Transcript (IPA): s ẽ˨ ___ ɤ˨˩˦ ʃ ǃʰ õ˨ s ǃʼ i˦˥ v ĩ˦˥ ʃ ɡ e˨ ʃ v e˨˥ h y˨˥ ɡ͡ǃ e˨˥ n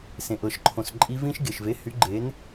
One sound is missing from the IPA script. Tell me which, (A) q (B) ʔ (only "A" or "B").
B